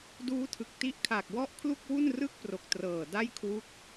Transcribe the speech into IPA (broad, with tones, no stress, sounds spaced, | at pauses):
d uː˦˥ tʰ ɯ˨˩ k̚ t i˦˥ ʔ kʰ a˨˩ k̚ w ɔ˥˩ ʔ kʰ l u˥˩ k̚ w u˥˩ n r ɯ˥˩ k̚ p r o˨˩ k̚ t r ɤː˨˩ d a˥˩ j kʰ w u˦˥ k̚